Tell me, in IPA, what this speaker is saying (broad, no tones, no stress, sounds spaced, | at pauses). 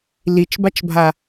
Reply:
l i t͡ʃ b a t͡ʃ bʱ a